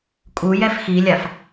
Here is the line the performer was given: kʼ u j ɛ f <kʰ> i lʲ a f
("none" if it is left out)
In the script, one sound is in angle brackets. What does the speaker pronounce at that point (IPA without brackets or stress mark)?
x